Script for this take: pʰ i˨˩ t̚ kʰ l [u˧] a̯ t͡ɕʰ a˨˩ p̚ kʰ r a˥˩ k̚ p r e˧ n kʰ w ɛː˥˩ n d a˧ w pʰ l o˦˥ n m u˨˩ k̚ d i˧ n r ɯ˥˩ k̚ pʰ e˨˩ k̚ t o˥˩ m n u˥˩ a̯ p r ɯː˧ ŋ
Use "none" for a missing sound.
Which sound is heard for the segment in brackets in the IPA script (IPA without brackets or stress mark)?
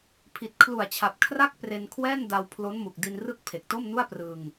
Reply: u˨˩